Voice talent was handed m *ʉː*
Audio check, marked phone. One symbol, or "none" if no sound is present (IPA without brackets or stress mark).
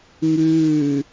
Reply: ʉː